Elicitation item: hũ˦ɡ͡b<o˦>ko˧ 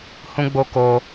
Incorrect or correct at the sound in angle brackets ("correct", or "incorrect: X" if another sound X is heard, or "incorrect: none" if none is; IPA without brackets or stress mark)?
correct